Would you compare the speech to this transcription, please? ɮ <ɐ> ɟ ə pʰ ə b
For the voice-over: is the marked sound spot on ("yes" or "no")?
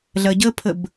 yes